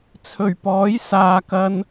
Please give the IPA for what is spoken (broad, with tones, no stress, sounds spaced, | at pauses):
t͡sʰ ɵ˨˩ ɥ p ɔː˨˥ j s aː˨ k ɐ˧ n